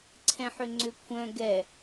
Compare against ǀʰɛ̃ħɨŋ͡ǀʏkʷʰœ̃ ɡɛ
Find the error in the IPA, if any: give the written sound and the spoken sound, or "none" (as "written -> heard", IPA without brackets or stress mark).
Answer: ɨ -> ʏ